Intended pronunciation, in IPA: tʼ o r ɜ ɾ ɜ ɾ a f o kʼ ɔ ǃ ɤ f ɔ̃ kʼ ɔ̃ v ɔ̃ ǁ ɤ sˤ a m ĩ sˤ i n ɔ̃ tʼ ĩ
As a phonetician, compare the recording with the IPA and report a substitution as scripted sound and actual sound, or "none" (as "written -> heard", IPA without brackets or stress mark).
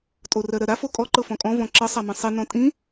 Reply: none